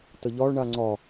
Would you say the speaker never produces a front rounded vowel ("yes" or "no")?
yes